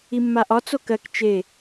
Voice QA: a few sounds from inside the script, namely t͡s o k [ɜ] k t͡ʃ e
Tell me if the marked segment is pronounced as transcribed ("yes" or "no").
yes